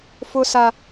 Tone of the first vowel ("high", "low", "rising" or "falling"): high